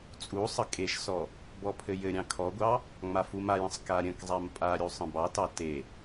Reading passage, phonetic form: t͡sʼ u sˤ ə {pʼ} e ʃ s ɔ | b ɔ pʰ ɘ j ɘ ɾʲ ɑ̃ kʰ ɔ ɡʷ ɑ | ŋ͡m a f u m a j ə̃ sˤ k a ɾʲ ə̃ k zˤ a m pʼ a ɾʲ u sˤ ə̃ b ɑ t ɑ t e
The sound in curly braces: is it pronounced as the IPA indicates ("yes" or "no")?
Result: no